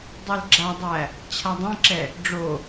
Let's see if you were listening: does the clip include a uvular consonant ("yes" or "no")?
no